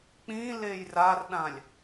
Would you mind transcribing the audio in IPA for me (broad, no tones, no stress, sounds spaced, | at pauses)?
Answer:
k͡p ĩ l e j r a r ɗ ã lʲ